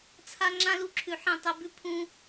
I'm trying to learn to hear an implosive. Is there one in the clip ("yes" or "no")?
no